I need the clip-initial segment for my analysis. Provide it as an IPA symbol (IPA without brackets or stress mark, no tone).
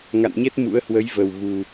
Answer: ŋ